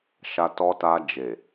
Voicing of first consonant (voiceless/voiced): voiceless